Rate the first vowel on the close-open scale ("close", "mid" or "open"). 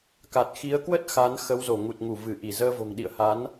open